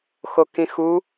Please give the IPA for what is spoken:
x o k ĩ x u

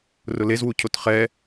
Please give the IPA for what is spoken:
r ʊ l e z w u cʰ o t χ ɛ

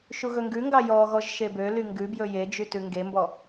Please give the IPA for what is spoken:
ʃ u ɣ ɵ ŋ ɡ ʉ ŋ ɡ ɑ j ɔ ɣ ɔ ʒ ʃ e b ø l y ŋ ɡ ʉ b j ɵ j e d͡ʒ y t ʉ ŋ ɡ e m b ɔ

